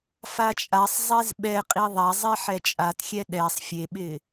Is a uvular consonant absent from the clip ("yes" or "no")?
no